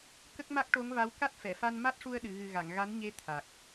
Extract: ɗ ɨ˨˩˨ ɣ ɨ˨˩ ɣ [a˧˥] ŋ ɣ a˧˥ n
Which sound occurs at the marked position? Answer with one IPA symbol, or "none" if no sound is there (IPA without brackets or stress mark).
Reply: a˨˩˨